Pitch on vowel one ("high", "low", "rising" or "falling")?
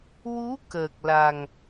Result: rising